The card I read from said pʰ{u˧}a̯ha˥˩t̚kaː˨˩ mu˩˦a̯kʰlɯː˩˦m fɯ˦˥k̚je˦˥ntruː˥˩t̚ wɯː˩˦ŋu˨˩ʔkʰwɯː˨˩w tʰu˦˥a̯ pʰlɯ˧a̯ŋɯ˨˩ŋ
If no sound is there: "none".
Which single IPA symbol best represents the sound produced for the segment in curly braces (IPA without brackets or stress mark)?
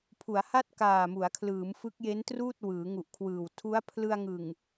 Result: u˩˦